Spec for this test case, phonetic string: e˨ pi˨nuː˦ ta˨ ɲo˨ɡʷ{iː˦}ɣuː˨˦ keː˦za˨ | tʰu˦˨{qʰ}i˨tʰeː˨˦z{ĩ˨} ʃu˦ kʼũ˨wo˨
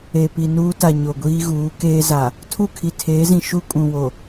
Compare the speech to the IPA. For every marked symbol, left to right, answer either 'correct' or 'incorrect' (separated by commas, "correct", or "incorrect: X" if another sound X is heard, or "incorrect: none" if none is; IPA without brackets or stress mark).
correct, incorrect: kʰ, correct